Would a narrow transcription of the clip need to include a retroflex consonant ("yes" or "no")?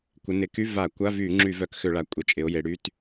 yes